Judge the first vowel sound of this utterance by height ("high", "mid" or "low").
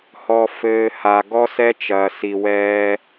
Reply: mid